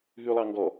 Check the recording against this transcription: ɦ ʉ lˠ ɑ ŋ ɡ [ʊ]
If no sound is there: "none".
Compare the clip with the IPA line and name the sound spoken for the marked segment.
ɔ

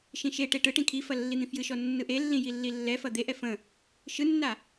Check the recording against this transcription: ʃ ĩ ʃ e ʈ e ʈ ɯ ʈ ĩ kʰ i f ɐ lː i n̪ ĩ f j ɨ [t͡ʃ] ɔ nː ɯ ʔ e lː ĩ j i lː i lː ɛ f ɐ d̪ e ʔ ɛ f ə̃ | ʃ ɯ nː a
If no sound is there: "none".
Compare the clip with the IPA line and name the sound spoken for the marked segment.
ʃ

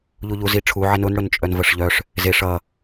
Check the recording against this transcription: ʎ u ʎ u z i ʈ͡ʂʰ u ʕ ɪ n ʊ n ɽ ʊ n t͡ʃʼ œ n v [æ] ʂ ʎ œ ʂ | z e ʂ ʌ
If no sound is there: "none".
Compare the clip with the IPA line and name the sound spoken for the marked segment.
ə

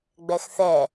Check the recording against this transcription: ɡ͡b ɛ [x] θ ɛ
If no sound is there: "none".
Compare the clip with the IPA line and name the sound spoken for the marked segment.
x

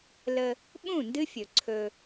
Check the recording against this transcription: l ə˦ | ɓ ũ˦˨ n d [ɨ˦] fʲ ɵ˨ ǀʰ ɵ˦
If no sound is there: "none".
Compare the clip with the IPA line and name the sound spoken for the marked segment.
ɨ˦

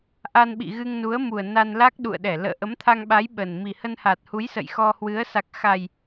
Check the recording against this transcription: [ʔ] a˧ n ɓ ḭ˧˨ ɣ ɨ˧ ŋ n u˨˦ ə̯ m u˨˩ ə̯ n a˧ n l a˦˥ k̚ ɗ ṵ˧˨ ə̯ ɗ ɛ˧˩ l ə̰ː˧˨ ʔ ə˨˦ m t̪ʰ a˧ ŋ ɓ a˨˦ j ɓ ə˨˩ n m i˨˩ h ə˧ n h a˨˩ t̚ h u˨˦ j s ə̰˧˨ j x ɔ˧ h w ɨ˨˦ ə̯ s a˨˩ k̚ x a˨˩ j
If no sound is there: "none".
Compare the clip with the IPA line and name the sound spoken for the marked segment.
ʔ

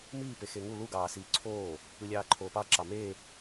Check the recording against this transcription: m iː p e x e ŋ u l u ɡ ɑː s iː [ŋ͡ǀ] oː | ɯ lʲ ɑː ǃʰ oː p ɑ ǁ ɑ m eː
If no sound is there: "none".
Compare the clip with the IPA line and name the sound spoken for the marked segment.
ǀʰ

